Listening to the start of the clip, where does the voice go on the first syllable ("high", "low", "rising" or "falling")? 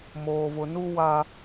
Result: low